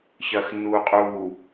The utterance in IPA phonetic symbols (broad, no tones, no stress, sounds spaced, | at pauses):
ç ɐː x nː uː qʼ uː